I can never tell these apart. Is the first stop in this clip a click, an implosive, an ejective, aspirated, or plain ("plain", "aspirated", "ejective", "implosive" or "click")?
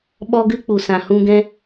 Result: implosive